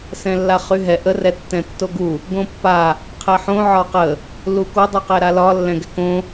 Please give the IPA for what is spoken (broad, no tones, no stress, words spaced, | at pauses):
sɛ̃lːaχyɦɛ ʔə rɛtːɛ̃tːoɡu | ɡõpːa | qʰɛħõ ʕɒqə | luko dˤyqɛɾalɒ lːɛ̃ɡɛkõ